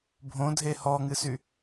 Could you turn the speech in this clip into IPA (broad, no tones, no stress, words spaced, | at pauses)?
bʱõdʱe hɔŋɨsy